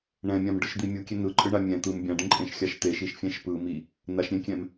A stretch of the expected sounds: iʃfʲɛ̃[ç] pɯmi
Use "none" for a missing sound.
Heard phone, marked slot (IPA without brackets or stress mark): ʃ